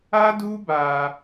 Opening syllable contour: high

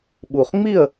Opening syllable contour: low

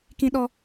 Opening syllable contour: high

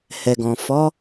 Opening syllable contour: low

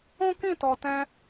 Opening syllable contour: high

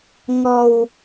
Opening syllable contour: low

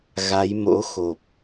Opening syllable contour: rising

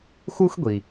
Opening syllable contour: high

